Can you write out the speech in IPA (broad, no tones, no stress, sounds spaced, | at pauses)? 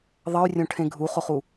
ðˤ ʌ y̯ rʲ õ ʈʰ ẽ ɡʱ u χ o χ u